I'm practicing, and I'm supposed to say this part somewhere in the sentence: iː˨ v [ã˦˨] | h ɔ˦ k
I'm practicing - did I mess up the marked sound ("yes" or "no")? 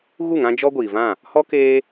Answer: no